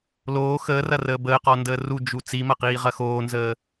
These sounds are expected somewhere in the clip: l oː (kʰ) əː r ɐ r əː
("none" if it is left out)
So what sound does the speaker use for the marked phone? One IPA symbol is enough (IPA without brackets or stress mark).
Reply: x